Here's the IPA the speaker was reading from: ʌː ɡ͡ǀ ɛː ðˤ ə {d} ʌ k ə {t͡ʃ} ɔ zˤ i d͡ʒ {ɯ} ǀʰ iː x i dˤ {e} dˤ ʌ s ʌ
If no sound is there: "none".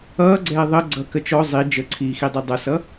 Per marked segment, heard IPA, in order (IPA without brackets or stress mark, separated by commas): ɡ͡ǀ, t͡ʃ, ə, i